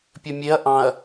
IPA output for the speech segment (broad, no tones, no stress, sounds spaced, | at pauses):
pʲ ɵ mʲ e ɐ̯ ʔ ɑ̃ ɐ̯